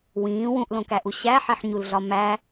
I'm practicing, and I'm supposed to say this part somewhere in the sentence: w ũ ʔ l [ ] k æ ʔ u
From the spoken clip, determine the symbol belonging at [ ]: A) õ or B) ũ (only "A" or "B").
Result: A